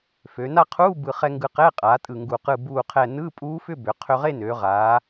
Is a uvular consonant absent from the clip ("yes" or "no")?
no